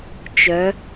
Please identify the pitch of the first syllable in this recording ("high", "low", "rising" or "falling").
rising